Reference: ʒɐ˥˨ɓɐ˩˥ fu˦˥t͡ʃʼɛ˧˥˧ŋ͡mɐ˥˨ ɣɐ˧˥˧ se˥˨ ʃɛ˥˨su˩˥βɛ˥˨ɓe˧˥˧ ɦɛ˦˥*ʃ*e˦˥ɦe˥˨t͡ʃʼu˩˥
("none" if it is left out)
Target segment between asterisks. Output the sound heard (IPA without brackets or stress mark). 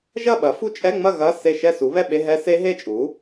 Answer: s